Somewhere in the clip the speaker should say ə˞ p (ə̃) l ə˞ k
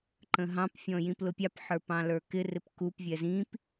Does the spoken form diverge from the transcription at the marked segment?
yes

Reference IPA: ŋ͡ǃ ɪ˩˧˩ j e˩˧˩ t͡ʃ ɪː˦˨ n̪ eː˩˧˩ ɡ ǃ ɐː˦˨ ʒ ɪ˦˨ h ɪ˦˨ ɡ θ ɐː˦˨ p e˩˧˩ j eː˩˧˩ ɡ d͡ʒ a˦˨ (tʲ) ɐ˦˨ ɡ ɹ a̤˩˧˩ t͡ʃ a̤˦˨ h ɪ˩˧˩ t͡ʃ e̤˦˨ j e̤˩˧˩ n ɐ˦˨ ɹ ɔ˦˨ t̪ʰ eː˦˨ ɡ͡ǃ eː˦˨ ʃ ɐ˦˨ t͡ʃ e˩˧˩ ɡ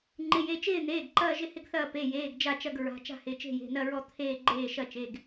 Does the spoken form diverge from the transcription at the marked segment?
yes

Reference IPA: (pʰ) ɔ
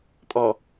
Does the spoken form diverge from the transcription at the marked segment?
yes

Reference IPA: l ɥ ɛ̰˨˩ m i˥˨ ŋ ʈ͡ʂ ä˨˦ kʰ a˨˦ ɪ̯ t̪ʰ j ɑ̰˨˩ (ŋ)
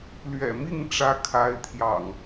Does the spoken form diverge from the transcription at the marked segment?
no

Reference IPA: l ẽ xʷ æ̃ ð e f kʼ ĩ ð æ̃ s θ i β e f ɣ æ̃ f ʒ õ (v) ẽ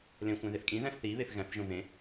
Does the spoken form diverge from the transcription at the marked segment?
no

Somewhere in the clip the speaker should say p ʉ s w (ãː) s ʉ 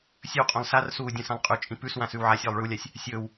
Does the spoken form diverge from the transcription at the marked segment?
yes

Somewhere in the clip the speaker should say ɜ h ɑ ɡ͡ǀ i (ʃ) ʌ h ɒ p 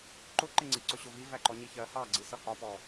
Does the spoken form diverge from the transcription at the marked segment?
yes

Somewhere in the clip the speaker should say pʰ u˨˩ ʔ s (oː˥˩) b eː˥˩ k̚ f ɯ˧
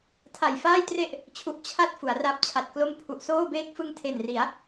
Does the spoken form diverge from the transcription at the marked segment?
no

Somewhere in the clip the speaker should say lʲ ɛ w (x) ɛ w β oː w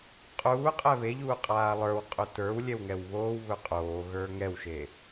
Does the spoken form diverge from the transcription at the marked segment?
yes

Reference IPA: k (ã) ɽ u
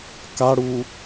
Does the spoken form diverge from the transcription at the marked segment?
yes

